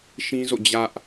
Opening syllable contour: high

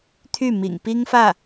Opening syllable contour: falling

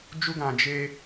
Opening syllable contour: high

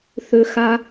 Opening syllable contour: low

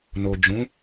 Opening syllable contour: low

